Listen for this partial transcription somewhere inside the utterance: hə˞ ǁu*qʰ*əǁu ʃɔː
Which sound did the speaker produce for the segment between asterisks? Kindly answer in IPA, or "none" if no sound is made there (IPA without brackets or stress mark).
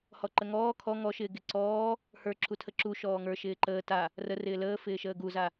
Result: tʰ